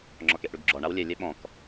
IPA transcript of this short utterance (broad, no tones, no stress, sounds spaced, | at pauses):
ŋ͡ǁ ɔ k e ʔ ɽ ʉ ɡ ɡ͡ǁ ɔ ɳ a w lʲ e lʲ e ɓ ɔ̃ k